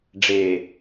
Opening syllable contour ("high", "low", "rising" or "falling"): low